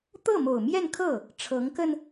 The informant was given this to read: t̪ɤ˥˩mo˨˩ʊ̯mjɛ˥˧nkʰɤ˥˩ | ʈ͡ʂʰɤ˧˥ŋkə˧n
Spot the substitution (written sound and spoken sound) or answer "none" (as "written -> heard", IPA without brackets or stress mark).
none